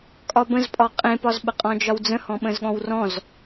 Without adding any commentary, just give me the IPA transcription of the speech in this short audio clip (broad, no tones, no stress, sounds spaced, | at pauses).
kʼ ɒ b ə̃ z pʼ ɒ qʼ ẽ p ɒ z ɓ ə qʼ ɔ̃ d͡ʒ ɒ w d͡z ə̃ h ɔ̃ ɓ ə̃ z ɠ ɔ̃ w r ɔ̃ z